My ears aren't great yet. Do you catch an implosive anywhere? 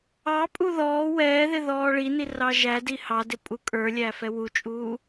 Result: no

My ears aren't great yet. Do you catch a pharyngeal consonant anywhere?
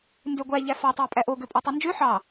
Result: yes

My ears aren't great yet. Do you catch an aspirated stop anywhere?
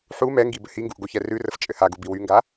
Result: no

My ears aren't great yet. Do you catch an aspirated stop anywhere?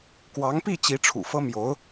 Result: yes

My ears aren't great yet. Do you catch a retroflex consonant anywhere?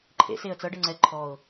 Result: yes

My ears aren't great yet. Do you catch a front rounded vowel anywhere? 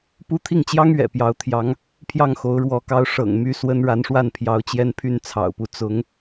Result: yes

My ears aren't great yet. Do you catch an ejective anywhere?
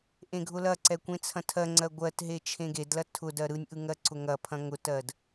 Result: no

